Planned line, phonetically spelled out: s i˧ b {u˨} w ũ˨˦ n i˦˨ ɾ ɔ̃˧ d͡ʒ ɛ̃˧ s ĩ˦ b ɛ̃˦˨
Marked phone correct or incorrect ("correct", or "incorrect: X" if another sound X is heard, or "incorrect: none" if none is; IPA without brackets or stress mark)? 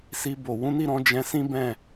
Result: incorrect: o˨